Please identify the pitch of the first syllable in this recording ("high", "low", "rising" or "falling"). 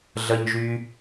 high